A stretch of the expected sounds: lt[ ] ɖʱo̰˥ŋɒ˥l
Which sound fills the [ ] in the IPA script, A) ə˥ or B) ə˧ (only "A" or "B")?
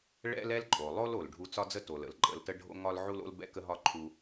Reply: A